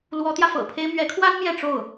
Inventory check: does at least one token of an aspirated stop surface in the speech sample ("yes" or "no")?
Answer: yes